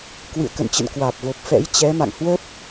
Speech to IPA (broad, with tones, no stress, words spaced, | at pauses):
kwɨ̰˧˨ə̯kə̰˧˨nt͡ɕə̰˧˨n kwaː˨˩p̚vo˨˩p̚ fɛ̰˧˥jt͡ɕɛ˨˦ma̰˧˨ŋ hwə˦˥p̚